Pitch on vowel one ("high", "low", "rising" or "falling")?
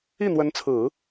falling